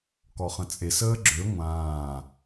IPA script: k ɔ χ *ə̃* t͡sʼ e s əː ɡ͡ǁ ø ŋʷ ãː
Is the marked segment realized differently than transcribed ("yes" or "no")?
no